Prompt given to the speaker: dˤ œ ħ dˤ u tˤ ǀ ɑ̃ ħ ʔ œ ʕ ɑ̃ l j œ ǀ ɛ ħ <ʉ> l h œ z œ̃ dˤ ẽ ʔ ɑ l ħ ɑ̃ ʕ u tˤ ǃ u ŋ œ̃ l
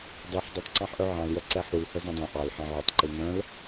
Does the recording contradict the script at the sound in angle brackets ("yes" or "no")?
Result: yes